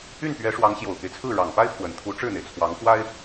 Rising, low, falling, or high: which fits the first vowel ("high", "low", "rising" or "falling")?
falling